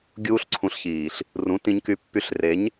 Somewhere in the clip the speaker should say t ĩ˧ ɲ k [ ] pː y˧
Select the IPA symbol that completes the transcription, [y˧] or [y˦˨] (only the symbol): y˧